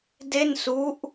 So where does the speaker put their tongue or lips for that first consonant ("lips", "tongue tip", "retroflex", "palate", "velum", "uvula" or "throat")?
tongue tip